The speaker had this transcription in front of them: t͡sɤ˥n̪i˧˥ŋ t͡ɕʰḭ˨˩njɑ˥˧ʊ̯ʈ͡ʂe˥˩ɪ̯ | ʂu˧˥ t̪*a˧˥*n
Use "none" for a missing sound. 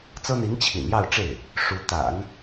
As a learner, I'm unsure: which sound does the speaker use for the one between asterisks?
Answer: a̰˨˩˦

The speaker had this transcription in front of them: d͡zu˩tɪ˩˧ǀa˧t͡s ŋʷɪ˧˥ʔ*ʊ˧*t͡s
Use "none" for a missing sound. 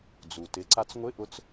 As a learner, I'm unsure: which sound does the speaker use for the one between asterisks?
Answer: ʊ˧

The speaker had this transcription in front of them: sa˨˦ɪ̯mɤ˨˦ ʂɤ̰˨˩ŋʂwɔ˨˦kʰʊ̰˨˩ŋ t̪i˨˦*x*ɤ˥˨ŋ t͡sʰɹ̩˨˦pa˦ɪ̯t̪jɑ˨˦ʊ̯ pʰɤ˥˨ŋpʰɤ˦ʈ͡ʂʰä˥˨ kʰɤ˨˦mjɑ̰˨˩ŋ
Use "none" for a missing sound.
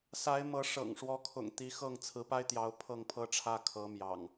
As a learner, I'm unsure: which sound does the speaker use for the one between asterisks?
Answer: x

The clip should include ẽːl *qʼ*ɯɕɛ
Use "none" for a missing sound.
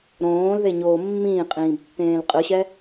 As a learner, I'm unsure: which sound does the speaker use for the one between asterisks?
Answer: qʼ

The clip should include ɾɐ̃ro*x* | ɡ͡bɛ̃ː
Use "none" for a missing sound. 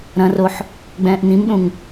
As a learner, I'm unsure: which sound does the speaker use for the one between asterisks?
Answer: ħ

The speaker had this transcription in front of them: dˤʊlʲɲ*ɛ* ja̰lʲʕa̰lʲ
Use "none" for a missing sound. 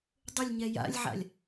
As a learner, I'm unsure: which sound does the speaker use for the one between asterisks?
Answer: ɛ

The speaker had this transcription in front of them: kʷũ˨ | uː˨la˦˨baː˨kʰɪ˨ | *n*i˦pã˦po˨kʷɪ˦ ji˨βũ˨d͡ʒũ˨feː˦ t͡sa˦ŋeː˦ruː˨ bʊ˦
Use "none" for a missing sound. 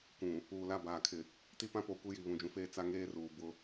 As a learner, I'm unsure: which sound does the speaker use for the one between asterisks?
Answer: t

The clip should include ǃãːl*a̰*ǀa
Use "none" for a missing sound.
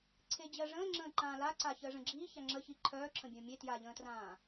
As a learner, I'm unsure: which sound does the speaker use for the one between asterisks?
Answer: a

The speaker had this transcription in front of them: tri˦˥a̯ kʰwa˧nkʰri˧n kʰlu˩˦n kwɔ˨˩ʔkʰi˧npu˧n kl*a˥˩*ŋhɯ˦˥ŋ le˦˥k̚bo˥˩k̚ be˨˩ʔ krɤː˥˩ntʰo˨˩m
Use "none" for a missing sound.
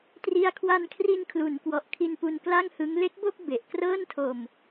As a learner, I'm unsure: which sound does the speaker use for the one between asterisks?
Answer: a˥˩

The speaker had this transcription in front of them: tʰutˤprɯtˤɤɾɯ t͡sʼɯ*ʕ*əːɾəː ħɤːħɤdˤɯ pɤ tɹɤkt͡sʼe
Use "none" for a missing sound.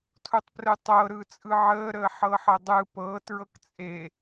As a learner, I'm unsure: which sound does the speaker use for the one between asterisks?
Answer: ʕ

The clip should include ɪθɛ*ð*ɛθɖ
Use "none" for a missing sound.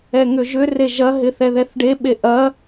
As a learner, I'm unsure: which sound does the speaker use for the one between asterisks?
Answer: ð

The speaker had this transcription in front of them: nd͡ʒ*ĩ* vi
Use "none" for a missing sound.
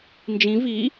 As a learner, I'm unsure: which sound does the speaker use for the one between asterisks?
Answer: ĩ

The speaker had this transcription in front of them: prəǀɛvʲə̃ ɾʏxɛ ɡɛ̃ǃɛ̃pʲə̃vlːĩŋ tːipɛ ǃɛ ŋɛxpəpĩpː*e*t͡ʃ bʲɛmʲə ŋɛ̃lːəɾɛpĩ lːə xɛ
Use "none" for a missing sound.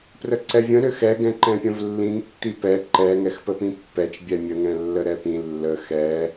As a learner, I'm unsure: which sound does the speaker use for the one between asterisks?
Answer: ɛ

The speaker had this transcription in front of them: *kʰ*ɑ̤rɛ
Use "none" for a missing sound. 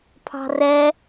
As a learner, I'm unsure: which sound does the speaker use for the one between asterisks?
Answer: pʰ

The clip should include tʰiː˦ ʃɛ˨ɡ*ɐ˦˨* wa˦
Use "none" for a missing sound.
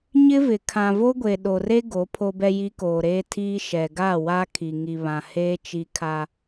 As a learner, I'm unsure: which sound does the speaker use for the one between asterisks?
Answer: a˦˨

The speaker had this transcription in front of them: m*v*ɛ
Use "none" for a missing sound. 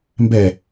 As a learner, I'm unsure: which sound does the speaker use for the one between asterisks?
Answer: b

